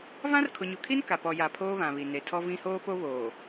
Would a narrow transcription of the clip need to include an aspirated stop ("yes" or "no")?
yes